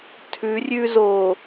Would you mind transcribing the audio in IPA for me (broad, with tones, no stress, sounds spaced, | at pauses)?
tʰ ʉ˨˦ rʲ ʉ˦ z o˨